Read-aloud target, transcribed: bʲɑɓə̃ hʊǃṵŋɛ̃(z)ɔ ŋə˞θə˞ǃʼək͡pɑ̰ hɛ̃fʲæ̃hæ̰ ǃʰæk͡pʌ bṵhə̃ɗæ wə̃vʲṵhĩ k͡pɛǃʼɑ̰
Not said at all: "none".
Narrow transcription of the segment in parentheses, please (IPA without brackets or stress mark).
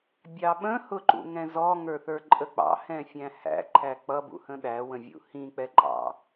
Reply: z